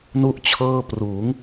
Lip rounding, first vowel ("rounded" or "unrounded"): rounded